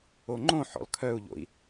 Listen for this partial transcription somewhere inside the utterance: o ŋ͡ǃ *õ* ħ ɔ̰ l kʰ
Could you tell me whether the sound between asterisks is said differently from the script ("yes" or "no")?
no